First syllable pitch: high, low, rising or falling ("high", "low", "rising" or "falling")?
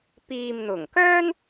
low